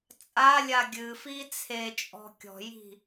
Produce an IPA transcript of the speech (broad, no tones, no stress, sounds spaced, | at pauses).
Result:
t͡sʼ a lʲ a ɡʲ ɨ f i t͡sʰ e t͡ʃʼ ɔ̤ kʲ ɔ̤ j i̤